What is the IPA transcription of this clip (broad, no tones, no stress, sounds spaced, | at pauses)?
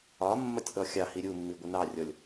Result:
ɒ mː ɒ tʲ ʔ ɔ xʲ ɑ h i ɾʲ u mː i ɡʷ ə n ɑ rʲ ɔ lʲ